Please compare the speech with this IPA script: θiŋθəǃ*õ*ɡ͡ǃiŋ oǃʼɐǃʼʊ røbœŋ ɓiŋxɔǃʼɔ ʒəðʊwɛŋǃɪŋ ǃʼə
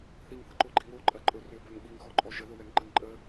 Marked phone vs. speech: incorrect: o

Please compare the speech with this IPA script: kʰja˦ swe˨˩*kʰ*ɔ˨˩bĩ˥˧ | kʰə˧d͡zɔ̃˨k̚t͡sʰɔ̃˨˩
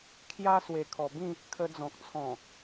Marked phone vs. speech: correct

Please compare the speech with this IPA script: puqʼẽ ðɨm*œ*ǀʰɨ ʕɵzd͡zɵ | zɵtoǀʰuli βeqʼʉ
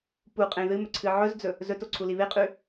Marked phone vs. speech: incorrect: ɵ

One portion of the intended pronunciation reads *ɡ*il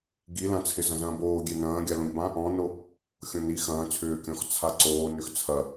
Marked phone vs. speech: correct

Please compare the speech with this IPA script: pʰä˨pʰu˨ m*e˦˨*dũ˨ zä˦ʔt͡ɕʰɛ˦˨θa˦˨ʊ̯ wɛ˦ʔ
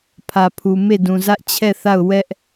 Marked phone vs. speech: correct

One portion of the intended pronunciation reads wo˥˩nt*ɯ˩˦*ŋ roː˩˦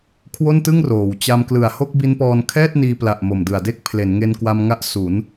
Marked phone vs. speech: incorrect: ɯ˥˩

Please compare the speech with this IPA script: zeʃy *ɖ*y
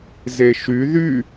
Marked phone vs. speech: incorrect: ð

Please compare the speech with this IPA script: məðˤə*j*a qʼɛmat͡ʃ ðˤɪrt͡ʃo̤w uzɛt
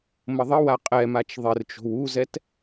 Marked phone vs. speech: incorrect: w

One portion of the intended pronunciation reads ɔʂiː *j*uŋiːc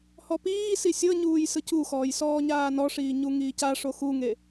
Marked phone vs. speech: incorrect: ɲ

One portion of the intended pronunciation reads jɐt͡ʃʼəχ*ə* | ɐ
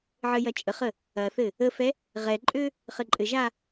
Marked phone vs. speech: correct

